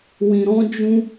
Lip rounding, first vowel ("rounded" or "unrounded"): unrounded